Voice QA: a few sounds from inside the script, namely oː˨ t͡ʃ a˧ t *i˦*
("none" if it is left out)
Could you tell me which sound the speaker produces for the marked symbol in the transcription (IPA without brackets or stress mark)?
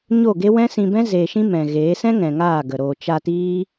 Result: iː˦